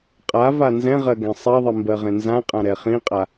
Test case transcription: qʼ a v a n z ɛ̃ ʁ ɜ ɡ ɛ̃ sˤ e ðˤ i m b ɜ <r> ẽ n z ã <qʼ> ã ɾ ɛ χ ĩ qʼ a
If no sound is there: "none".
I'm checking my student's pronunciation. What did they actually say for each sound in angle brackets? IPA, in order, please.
ʁ, qʼ

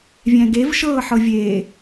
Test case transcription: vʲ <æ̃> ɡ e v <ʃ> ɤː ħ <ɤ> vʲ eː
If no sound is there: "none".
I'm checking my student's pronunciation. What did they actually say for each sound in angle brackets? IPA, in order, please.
æ̃, ʃ, ɤ

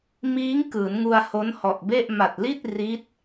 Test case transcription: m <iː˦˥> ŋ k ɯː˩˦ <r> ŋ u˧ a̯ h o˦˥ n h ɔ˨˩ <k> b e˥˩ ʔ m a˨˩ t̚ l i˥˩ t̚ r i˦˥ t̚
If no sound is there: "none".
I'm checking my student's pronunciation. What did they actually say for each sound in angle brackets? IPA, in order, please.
iː˦˥, n, ʔ

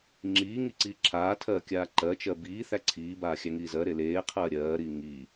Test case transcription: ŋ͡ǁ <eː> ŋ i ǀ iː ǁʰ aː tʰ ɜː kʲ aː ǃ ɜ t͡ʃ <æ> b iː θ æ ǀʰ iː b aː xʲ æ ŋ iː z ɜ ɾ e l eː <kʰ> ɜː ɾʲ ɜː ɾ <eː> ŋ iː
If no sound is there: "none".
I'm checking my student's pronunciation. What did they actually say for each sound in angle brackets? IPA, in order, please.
iː, ɜ, qʰ, iː

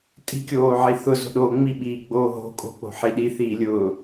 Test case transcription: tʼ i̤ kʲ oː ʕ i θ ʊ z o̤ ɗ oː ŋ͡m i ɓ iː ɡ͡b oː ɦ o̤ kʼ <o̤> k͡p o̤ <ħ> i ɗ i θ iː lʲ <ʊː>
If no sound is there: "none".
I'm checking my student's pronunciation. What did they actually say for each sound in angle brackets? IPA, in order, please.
o̤, ħ, ʊː

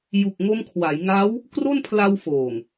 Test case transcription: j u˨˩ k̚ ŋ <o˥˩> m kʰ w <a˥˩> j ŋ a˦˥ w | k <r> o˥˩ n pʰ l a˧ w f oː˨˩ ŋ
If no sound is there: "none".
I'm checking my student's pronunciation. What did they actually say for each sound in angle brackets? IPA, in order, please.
o˧, a˩˦, r

